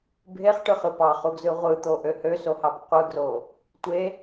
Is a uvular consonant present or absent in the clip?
present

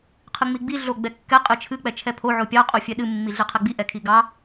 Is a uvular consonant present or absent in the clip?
present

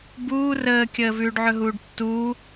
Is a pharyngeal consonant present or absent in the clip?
present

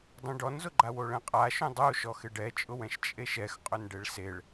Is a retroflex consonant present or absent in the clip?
present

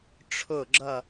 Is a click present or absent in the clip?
present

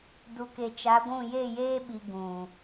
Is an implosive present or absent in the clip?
present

